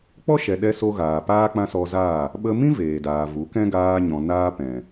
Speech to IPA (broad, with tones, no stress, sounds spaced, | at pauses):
k͡p ɔ˦ ʃ ɛ˨ ɗ ɛ˦ s o˦ ɣ aː˨ p aː˦ k͡p ã˦ s ɔ˧ z aː˦˨ | ɓ ə˧ m ĩ˦ v eː˨ d aː˨ v u˨˦ k ɛ̃˦ ɡ aː˧ ɲ ɔ̃˨ n aː˦ p ɛ̃˨